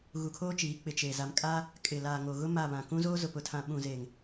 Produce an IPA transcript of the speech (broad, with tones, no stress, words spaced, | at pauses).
ɣu˨kʰoː˦t͡ʃiː˨˦ k͡pɪ˨t͡ʃeː˨ za˨mkʼa˦ | kʼɪ˨la˨ŋo˨ɣʊ˦ ma˦˨βã˨ kũ˦zoː˦ zʊ˨pʊ˨tʰã˨ ɓũ˨zeː˨ŋ